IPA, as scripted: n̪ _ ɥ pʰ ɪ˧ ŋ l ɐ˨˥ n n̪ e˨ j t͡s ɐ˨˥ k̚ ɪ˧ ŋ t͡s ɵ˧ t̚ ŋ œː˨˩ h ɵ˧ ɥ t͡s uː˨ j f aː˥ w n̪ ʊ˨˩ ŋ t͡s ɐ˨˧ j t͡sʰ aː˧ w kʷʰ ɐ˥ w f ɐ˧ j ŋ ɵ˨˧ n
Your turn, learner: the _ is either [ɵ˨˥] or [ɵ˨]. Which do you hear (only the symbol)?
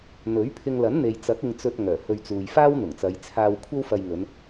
ɵ˨˥